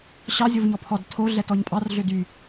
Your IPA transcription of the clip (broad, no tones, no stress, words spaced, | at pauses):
ɕɑ zʲovɲɔpʰɔd tʰo ɮɛtɔɲpʼɑr ɮødy